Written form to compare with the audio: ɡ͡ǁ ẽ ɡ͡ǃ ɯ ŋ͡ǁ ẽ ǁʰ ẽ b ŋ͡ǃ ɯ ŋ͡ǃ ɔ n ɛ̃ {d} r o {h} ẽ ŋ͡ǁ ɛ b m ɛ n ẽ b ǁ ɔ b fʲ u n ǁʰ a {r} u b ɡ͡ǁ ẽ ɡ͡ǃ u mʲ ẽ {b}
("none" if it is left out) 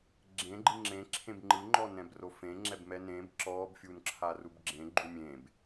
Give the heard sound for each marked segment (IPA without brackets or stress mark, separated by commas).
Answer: b, f, r, b